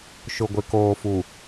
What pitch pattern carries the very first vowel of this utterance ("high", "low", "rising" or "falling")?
low